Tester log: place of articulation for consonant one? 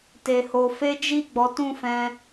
alveolar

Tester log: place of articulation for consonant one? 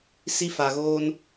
alveolar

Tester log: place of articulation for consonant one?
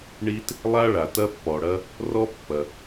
retroflex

